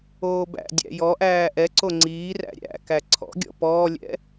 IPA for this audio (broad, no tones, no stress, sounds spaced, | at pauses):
oː b æ̰ dʲ æ̰ j ɔ ʔ æː ʔ ɛ ǀ o ŋ͡ǀ iː r æ̰ ɾʲ æ̰ k æ ǀʰ ɔ̰ ɡʲ ɔ̰ p ɔː lʲ ɛ̰